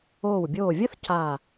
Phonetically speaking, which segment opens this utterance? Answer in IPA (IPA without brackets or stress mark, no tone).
oː